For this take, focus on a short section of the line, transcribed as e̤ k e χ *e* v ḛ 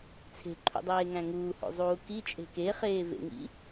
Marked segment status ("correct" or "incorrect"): incorrect